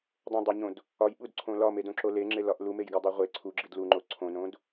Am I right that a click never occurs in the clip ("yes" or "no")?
no